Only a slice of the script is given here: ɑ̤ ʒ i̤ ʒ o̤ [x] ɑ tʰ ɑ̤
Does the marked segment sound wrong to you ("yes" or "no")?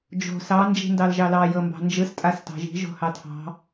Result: yes